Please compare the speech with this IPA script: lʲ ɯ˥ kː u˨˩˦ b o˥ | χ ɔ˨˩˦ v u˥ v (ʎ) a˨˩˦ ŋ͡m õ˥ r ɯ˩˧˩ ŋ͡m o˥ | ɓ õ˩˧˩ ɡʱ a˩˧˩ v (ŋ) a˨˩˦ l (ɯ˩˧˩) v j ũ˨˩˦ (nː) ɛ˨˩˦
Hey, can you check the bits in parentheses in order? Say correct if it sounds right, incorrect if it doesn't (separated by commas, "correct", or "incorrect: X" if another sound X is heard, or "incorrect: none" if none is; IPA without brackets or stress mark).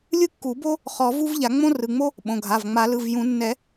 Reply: correct, incorrect: ŋ͡m, correct, correct